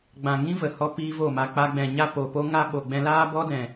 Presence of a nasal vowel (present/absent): present